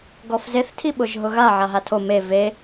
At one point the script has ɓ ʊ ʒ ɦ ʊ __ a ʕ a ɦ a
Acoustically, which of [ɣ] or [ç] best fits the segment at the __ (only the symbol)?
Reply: ɣ